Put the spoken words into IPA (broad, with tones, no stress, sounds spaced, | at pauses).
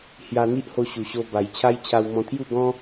h j a˧ n̪ i˦ ʔ h o˧ ɕ u˨˩ ɕ o˧ b a˨˩ j t͡ɕʰ a˦ j t͡ɕʰ a˧ w m ɔ̃˧ t̪ʰ j u˥˧ ɡ ɔ̃˦